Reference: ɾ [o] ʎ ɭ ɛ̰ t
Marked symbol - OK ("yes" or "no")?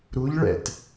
no